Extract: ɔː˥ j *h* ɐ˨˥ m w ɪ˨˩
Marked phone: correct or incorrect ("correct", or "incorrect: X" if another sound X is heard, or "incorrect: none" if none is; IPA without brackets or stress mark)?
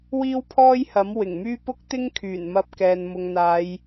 correct